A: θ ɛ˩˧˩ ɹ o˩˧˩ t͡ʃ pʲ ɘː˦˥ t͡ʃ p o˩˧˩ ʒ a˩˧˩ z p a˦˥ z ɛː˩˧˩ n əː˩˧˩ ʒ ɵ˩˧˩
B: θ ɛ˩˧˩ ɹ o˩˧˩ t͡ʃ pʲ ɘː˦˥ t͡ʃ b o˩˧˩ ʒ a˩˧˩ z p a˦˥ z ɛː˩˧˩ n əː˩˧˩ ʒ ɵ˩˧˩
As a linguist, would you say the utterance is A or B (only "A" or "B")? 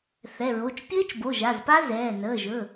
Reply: B